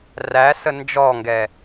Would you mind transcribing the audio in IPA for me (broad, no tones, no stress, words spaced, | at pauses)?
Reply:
ræsə nd͡ʒɔŋɡɛ